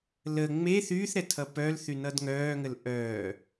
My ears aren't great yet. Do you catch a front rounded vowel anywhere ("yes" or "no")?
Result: yes